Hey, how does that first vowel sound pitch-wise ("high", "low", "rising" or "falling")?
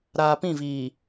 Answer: low